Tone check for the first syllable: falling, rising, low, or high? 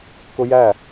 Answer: high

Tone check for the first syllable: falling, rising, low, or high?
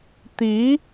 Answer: rising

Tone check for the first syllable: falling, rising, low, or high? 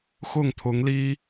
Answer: falling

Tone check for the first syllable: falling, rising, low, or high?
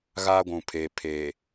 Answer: high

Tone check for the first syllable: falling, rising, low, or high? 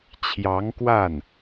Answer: rising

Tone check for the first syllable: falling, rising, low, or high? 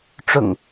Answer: low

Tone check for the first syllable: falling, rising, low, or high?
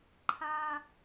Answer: high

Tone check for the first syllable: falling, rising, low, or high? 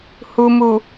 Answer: low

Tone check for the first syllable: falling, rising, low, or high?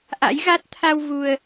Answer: rising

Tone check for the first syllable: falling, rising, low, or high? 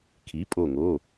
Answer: rising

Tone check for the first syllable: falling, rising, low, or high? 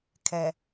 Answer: low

